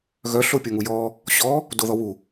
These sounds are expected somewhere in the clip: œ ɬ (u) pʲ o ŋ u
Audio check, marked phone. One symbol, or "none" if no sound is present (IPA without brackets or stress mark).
o